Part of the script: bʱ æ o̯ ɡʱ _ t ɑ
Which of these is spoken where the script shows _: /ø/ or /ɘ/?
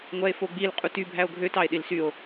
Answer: ø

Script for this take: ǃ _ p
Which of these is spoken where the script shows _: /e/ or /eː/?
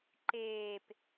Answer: eː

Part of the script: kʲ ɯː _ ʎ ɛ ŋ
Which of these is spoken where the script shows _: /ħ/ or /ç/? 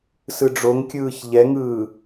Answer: ç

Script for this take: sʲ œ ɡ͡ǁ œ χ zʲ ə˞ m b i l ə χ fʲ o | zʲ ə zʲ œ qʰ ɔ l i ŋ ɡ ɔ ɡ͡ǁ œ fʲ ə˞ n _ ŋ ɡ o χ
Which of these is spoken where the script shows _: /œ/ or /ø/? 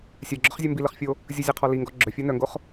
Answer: œ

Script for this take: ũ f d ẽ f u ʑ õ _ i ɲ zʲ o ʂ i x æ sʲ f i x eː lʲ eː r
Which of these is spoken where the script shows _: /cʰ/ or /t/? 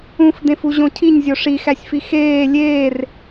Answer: cʰ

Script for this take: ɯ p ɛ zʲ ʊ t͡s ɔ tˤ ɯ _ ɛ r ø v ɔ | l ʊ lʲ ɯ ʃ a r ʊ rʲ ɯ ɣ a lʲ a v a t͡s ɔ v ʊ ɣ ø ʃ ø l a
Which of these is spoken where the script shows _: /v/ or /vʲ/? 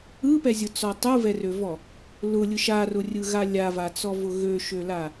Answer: v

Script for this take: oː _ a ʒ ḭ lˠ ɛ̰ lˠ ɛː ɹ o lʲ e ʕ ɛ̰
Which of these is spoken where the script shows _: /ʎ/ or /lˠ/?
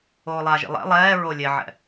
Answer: lˠ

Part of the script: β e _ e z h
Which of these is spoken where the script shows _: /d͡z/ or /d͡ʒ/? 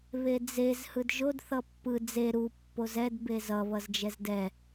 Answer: d͡z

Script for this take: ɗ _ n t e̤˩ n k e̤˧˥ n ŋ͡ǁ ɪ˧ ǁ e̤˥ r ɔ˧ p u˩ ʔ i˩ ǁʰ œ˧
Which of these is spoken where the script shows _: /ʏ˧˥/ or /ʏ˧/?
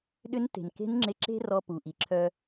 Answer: ʏ˧˥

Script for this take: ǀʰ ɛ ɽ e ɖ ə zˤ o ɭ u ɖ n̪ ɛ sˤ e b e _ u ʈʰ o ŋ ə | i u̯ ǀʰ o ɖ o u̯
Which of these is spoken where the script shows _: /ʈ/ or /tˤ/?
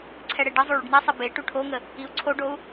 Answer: ʈ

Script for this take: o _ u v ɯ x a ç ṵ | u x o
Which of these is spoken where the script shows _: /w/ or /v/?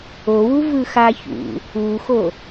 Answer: w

